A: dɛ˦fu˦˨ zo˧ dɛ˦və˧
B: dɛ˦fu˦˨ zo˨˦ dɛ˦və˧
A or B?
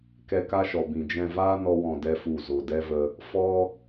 A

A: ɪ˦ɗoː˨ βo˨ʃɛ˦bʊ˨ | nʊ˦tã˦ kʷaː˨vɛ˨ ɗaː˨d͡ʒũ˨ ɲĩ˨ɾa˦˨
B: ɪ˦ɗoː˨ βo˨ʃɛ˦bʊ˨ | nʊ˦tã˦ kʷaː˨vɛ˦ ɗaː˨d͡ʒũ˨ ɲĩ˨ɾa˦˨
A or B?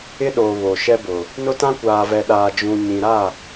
A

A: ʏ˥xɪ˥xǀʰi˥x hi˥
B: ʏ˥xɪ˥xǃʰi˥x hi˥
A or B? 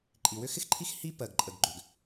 B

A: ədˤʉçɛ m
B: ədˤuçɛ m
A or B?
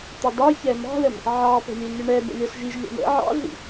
B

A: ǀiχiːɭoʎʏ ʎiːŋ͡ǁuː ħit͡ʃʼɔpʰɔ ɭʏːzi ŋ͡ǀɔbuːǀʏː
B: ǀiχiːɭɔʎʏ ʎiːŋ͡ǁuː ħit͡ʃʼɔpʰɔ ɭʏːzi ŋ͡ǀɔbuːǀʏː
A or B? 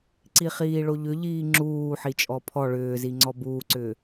A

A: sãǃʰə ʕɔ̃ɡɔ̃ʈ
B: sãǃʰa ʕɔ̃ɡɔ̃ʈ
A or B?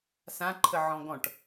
A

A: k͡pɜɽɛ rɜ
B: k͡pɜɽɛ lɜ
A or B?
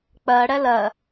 B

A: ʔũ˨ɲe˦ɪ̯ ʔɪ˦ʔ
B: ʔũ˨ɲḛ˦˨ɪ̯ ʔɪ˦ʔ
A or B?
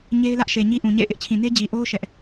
B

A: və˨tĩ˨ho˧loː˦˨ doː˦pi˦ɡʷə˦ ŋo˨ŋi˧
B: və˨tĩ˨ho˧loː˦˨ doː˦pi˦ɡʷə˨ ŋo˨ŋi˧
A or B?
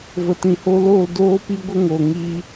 A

